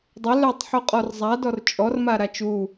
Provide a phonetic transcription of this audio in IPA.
dˤ ə l œ tˤ ħ u qʼ ɔ r zˤ a d ɔ r t͡ʃʼ ɔ r m a ɾ a t͡ʃ u

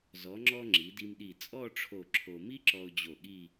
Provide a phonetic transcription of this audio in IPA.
z ɔ˩˧ ŋ͡ǁ ɔ˧ ŋ͡ǁ i˩˧ d i˧ m ɗ i˧˩ t͡sʼ ɔ˥˧ ʈ͡ʂʰ o˧˩ ǁʰ o˧ m i˥ ǁ ɔ˧ ʊ̯ d͡ʑ o˧˩ ɠ i˥˧

